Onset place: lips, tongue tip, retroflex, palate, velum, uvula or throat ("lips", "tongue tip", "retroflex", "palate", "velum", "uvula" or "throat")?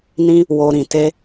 tongue tip